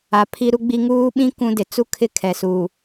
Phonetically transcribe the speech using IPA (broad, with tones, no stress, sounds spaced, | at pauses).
a˨ pʰ i˦ ɾ u˦ ɡ͡b i˦ ŋ uː˦ ɓ ĩ˦ k ũ˦ d ɪ˨ t͡s u˦ kʰ ɪ˦˨ kʰ ɛ˨ s uː˨